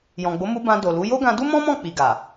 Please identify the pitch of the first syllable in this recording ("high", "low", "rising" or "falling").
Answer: low